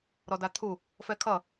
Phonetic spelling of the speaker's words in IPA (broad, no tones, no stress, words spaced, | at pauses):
ɾɔdat̪ʰu | fɛkʰʌ